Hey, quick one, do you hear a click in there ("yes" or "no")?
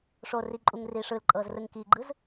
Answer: yes